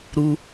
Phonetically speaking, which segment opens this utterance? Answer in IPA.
ɾ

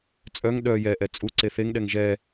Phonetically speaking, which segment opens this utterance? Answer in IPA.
t͡sʼ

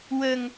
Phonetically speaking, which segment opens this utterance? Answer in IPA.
w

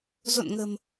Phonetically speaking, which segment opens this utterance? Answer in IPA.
z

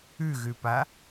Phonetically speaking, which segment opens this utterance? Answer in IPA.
ʉ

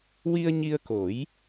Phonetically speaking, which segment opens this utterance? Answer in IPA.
w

